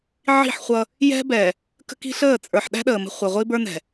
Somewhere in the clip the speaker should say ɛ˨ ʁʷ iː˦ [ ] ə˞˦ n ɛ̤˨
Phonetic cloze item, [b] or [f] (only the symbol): b